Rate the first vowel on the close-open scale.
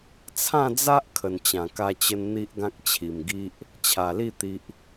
open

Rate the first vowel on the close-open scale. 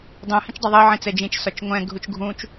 close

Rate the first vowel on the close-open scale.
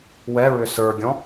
mid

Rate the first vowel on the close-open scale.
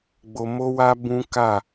mid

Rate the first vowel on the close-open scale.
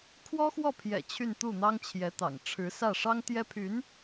mid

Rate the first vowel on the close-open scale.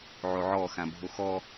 mid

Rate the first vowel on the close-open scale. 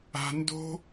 open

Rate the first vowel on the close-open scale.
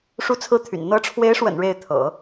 close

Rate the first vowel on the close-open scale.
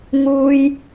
close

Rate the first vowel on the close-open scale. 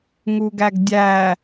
close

